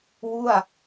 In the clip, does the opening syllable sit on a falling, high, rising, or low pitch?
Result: falling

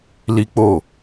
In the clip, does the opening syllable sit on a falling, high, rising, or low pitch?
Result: high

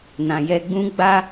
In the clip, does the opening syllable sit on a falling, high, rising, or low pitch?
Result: low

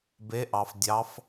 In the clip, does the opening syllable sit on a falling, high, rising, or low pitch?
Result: rising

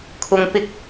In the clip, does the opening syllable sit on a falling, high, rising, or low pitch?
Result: low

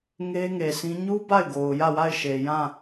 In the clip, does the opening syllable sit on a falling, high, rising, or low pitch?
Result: high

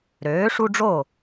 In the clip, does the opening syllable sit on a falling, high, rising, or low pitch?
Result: rising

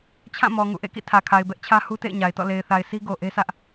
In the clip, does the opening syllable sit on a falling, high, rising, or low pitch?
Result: falling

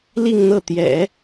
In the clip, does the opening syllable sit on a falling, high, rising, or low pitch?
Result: falling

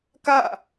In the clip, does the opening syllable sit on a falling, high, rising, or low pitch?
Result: falling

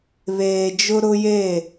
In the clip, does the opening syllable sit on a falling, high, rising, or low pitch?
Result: low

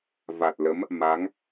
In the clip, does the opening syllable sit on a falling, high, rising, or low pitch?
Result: low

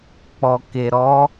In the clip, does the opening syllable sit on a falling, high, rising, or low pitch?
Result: low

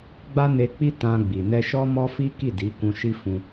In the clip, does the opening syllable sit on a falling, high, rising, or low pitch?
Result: high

